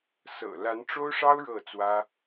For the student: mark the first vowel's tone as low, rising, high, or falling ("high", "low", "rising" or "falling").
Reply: low